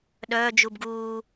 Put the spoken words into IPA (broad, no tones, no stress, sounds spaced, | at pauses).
ɗ œː d͡ʒ u b ɡ uː